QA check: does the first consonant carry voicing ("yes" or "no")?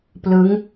no